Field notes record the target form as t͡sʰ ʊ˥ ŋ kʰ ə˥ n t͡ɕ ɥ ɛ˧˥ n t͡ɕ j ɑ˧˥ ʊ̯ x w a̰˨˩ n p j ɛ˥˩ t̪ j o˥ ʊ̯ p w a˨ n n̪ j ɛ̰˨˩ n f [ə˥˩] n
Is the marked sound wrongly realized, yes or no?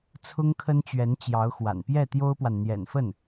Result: no